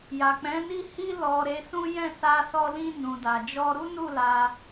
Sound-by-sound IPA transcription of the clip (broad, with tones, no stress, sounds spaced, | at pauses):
j a˨ k͡p ɛ̃˨˦ n i˦˨ h i˧ l ɔ˨ ɾ e˨˦ s ũ˦ j ɛ̃˦˨ s a˧ s ɔ˧ l ĩ˧ n ũ˨ d a˨ d͡ʒ ɔ˧ ɾ u˦ n u˦˨ l a˧